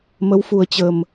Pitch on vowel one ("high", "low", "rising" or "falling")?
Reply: rising